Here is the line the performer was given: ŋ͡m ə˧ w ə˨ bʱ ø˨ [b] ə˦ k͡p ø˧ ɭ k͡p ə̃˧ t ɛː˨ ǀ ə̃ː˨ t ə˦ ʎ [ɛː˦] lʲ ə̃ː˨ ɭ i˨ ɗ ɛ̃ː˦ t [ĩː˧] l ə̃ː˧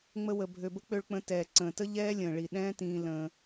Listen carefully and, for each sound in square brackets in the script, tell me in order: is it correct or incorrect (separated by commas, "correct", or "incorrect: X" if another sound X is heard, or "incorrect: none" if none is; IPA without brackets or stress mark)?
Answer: correct, correct, correct